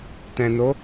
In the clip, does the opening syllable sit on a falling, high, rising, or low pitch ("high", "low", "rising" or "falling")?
low